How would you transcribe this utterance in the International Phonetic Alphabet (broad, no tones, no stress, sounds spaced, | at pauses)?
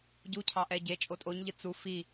ɟ u cʰ ɑ ʔ ɛ ɟ e t͡ʃʼ o tʼ o ɲ ʎ ɨ t͡s u f i